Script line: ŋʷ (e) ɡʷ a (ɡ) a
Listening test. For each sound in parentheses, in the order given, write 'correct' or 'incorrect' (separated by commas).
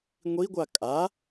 incorrect, incorrect